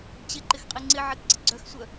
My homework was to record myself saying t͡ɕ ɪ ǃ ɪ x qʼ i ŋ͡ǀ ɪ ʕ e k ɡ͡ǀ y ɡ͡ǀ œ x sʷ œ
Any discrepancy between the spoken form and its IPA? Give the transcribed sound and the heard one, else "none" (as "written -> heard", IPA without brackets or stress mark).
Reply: y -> ɪ